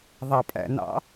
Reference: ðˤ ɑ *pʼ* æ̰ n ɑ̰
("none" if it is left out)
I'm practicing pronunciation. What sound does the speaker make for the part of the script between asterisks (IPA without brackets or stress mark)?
pʼ